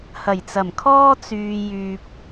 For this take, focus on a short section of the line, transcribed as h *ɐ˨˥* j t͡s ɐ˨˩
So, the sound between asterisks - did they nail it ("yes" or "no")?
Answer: no